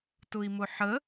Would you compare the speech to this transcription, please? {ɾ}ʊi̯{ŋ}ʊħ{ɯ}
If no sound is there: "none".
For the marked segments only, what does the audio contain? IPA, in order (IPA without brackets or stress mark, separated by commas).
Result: t, m, ə